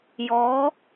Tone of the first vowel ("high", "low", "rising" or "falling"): rising